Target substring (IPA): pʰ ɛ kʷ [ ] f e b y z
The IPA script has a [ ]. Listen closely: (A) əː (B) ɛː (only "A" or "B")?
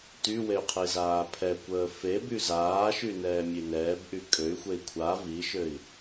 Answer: A